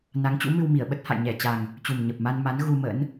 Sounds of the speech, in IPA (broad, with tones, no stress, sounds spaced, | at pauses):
n a˨˦ ŋ t͡ɕ ṵ˧˥ m ɨ˧ w m i˧˩ ə̯ ɓ ə˦˥ t̚ h a̰˧˨ j ɲ ɛ˧˩ t͡ɕ a˨˩ ŋ | t͡ɕ u˨˩ m ɲ ə˨˩ p̚ m a˧ n m a˨˦ n ɣ u˧ m ə̰˧˥ n